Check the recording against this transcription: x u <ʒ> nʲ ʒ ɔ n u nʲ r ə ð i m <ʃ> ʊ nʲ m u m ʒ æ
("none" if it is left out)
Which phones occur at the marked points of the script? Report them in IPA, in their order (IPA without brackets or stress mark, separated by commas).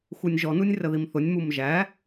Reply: none, θ